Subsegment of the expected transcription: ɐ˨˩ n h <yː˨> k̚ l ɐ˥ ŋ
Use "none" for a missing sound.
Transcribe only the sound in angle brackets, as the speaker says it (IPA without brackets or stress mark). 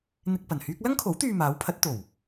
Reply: yː˥